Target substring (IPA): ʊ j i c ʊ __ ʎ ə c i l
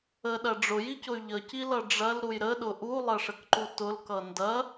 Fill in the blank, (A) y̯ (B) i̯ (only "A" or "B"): A